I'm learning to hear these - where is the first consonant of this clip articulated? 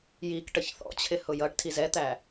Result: palate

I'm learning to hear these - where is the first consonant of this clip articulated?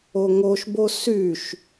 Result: velum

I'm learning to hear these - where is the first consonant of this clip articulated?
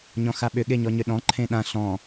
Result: palate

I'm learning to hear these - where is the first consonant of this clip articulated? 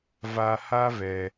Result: lips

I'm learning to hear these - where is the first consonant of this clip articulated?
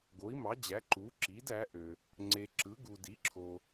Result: velum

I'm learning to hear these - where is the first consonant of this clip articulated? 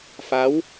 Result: lips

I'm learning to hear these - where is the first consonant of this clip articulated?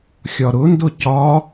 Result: velum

